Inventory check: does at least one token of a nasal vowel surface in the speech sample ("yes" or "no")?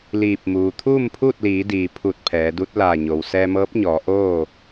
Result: no